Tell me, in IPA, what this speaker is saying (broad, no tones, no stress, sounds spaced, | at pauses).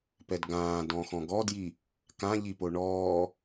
p ɛ d ɡ ãː d ɔ̃ x ɔ̃ ɡ ɔ d j i | k ã ʎ i p o ɳ ɔː